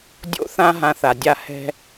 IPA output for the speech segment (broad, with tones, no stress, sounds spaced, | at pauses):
dʲ o̰˧ θ ã˧ ɦ ã˧ θ a˨ dʲ a˦˨ h ɛ̤˦